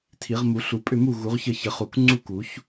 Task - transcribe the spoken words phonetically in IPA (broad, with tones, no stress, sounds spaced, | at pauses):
tʰ i˨˩˦ ʁ m u˨˩˦ ɬ u˨˩˦ pʼ ʏ˥˨ m u˥˨ ɣ u˨˩˦ ʁ ç ə˥˨ ç ə˨˩˦ χ u˨˩˦ k ŋ͡ǀ u˥˨ k u˨˩˦ ç